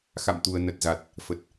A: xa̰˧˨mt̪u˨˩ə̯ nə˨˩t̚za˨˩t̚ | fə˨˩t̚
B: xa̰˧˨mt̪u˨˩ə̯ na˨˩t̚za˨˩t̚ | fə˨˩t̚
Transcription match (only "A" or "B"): A